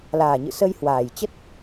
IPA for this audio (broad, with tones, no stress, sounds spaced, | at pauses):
l aː˨˩ ɲ ɨ̰˧˨ s ə˧ j h w aː˨˩ j t͡ɕ ə˦˥ t̚